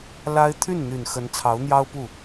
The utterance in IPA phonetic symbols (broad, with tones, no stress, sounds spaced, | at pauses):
l a˥ ɪ̯ t̪ʰ y˥˩ n n̪ y˨˩ n x ə˧˥ n t͡sʰ ɑ˧˥ ʊ̯ n̪ j ɑ˥ ʊ̯ p u˥˩